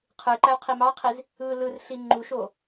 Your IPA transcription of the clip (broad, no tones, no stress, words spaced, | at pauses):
qʰɯ ǃæu̯qʰimɑqʰiz | ɯ lɯrɬi ŋ͡ǃuʃo